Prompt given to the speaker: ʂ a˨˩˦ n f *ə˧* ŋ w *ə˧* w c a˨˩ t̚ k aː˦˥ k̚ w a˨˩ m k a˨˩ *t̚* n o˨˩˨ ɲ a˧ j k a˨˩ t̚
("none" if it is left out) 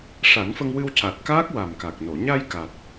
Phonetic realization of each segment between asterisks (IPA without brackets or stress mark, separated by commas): ə˧, ɨ˧, k̚